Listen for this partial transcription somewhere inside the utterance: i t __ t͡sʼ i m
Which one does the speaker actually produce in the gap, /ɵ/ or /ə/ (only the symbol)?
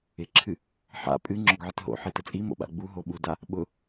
ə